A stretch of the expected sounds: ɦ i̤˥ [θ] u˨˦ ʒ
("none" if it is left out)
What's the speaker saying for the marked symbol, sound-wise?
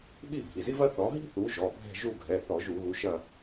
θ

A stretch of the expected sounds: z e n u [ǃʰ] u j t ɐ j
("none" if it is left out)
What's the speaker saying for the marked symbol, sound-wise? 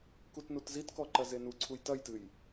ǀʰ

